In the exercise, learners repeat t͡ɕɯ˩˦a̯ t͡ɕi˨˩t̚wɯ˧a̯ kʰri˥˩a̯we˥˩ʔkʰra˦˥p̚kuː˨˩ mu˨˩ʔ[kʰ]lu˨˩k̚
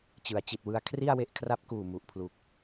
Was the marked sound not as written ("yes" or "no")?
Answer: yes